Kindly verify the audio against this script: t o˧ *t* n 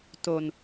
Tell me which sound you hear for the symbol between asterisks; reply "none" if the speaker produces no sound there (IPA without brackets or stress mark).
none